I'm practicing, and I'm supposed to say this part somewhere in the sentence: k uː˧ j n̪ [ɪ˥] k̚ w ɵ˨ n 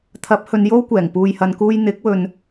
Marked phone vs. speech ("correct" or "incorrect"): incorrect